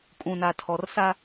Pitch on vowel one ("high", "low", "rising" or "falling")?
low